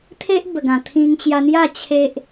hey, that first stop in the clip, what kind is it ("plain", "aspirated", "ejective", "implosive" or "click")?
aspirated